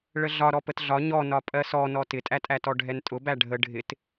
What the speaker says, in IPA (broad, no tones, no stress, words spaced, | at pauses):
ɭəɮɒ ɾɔpətɮɒ ɲɔnɒ pʼɜsɔnɔ tɪtʼætʼætɔ ɖʱɛntʼʊbæ ɖʱə ɖʱɪt